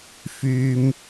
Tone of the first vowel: high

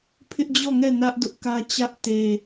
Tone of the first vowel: high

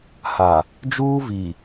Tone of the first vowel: low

